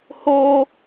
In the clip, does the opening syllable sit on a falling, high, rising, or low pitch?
high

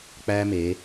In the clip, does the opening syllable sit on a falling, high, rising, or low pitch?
high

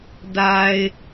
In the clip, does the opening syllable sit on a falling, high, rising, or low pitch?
low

